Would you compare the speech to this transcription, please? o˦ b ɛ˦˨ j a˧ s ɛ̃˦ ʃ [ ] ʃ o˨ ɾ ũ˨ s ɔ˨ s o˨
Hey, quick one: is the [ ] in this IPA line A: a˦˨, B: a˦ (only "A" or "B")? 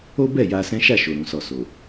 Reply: A